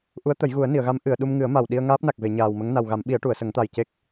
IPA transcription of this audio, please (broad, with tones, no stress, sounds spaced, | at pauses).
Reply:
ʔ u˧˥ ə̯ t̪ ə˨˩˦ j ɣ u˨˩˦ ə̯ n i˨˩˨ ə̯ ɣ a˧˥ m ʔ ɨ˨˩˨ ə̯ ɗ u˧ m ŋ ɨ˨˩˦ ə̯ m a˨˩ w ɗ i˧ ə̯ ŋ aː˦˥ p̚ n a˨˩ k̚ v e˨˩˨ ɲ aː˨˩ w m ə˧˥ ŋ n a˨˩ w ɣ a˨˩˦ m ɓ i˨˩˦ ə̯ ʈ u˨˩˨ ə̯ s ə˨˩˦ ŋ t̪ a˨˩ j c e˦˥ k̚